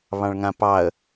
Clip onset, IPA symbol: β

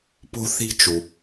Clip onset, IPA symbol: p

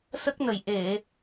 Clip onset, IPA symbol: s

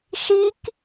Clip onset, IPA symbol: ʃ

